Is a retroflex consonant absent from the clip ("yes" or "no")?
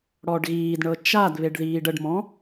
no